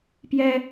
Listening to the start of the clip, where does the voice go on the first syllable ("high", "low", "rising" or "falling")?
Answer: high